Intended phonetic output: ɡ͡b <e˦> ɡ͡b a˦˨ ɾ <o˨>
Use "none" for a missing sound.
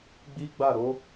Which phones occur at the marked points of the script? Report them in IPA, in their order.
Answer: i˦, o˨˦

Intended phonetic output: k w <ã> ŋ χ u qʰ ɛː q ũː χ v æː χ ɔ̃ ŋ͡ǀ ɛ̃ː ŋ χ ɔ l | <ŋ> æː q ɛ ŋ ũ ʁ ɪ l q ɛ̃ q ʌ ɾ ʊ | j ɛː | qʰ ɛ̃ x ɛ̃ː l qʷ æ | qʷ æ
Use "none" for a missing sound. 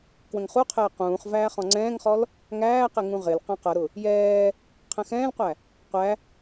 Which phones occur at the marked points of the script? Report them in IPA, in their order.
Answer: ə̃, ŋ

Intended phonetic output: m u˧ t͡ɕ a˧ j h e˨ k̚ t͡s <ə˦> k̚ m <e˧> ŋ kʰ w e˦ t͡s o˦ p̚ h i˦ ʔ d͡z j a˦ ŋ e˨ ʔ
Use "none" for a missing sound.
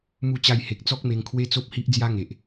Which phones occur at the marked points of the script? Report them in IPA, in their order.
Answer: ɔ˦, e˧

